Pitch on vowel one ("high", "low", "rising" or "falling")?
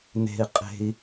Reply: low